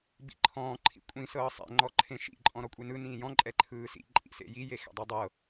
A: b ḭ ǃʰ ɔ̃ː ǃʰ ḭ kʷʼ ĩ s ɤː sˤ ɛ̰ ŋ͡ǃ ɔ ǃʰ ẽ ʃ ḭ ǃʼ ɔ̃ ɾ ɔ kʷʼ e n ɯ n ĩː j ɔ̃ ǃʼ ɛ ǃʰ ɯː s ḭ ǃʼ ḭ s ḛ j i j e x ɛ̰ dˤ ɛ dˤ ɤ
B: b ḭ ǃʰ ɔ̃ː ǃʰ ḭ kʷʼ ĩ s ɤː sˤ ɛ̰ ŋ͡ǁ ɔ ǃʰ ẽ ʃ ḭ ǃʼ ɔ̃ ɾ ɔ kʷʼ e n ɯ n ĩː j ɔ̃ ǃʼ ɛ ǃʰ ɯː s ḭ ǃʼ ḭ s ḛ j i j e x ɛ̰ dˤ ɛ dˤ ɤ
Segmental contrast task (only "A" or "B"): A